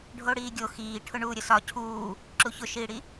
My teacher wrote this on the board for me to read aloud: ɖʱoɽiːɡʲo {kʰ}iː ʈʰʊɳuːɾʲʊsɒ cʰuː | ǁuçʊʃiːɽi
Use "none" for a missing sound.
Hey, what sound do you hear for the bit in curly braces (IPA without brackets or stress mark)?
x